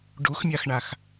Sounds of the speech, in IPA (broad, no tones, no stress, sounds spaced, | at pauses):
ɖ u x mʲ a x ɳ a x